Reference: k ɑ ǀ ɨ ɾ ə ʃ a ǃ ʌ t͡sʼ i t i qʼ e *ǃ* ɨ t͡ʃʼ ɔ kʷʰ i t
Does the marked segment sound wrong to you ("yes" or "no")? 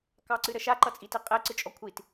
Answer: yes